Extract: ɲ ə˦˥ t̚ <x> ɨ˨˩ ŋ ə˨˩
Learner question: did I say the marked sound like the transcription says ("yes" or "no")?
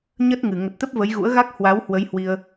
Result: no